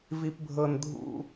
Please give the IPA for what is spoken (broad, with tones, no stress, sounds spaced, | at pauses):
v i˥ p bʱ ɤ˥ n dʱ ṵ˥